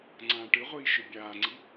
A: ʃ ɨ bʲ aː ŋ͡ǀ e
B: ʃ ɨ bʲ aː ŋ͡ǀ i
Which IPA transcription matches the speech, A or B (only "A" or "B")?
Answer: B